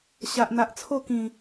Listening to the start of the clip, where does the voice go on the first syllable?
low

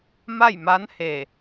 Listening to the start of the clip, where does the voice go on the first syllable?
falling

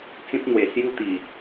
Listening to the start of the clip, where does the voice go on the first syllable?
high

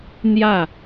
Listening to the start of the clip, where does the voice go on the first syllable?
falling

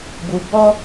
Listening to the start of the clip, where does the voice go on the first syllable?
low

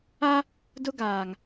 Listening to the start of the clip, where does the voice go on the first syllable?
high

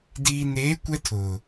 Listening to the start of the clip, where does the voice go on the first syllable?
low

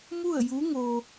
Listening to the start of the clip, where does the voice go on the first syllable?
falling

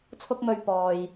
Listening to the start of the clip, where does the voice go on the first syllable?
high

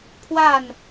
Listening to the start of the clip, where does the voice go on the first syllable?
falling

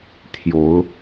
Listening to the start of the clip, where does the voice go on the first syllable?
rising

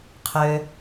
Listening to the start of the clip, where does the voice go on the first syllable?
low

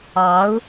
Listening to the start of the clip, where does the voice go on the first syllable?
rising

